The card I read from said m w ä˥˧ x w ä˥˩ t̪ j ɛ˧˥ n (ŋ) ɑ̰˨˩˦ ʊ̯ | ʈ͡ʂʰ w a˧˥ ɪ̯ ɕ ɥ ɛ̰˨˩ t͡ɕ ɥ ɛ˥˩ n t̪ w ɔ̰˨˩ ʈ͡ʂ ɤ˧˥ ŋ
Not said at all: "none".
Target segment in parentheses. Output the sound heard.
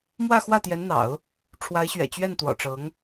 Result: n̪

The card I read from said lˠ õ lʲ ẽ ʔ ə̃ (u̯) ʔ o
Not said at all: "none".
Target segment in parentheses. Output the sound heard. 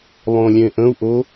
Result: u̯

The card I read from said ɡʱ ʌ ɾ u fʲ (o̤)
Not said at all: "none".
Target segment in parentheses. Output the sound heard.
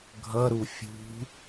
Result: ṳ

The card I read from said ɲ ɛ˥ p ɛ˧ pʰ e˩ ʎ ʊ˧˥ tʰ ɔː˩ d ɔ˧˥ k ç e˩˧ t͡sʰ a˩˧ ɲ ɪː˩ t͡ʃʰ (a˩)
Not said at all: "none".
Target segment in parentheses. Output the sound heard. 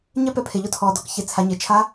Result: a˧˥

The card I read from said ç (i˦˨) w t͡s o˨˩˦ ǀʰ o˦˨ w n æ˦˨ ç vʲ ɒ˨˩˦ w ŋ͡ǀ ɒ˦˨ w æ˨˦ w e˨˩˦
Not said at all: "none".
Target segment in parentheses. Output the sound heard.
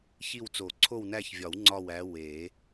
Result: i˦˨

